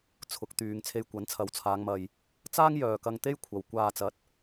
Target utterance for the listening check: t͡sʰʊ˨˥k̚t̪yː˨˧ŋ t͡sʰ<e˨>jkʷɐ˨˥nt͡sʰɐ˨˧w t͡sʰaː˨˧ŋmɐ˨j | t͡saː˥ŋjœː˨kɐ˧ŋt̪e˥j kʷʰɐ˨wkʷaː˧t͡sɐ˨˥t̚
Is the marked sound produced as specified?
no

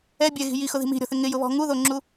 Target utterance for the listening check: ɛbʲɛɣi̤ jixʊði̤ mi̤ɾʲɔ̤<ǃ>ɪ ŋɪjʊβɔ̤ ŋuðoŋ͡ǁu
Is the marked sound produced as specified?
no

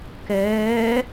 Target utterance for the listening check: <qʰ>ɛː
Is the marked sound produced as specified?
no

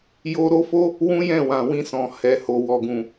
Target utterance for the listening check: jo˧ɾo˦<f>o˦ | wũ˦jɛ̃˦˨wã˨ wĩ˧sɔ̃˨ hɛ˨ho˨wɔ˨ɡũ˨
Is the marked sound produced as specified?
yes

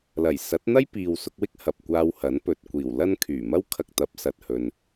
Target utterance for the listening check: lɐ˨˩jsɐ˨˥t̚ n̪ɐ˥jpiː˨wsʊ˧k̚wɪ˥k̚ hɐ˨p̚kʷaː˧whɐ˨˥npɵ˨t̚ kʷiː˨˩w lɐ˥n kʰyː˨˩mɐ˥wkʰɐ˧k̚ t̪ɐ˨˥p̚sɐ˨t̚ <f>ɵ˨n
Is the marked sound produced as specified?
no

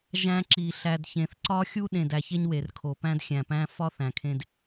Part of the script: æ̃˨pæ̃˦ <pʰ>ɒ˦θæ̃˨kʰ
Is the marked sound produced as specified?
no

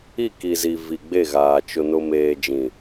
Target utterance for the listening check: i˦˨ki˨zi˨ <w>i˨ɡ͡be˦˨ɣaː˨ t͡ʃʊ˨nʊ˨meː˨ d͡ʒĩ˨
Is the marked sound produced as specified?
no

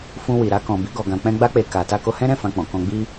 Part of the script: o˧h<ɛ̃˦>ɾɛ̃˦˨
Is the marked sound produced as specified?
yes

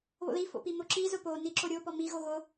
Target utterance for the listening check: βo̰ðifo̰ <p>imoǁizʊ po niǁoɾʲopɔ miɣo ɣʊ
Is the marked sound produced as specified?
yes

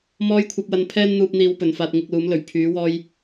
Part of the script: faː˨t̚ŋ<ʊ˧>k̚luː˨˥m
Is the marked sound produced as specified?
no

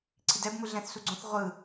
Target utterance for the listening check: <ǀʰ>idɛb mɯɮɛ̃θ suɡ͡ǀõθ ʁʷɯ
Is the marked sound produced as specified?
yes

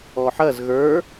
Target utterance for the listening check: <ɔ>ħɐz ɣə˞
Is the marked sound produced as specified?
yes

